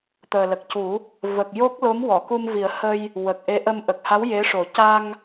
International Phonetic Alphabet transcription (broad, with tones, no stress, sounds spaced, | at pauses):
t̪ əː˨˩ l ə˨˩ k̚ c u˨˩˦ | v ə˨˩ k̚ j o˦˥ k̚ l o˧˥ m w ɔ˨˩˨ k u˧ m v i˨˩˦ ə̯ h ə˧ j | w ə˨˩ k̚ ʔ e˧˥ ʔ ə˧ m ʔ ə˨˩ k̚ h a˧˥ w j e˧˥ ʂ o˨˩˦ c a˧ ŋ